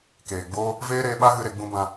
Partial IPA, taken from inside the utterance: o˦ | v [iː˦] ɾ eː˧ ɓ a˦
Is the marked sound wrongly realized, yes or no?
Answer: yes